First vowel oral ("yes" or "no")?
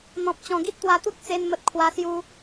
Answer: no